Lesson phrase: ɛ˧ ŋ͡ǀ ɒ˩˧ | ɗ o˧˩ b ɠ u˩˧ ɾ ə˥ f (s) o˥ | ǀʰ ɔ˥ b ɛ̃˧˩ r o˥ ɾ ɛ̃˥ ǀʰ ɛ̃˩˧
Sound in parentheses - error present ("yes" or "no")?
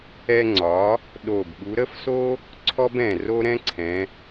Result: no